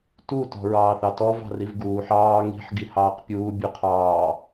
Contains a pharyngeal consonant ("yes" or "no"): yes